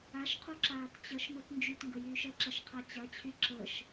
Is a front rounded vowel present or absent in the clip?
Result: present